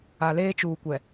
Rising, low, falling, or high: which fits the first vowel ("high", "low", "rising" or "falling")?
low